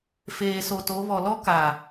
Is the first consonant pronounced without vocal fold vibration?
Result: yes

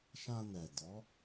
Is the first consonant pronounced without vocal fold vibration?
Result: yes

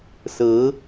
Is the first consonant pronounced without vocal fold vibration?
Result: yes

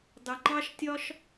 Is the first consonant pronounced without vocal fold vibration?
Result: no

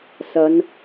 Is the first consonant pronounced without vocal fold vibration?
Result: yes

